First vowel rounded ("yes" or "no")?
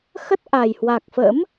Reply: no